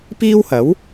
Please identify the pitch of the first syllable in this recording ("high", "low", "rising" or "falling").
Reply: high